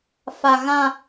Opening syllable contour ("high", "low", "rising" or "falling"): low